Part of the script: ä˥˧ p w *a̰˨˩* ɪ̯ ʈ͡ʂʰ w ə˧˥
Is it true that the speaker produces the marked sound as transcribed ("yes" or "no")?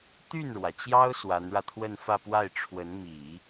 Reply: no